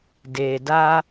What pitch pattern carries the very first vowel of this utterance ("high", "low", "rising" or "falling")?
low